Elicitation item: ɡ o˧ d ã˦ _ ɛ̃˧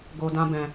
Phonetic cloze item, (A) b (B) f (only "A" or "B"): A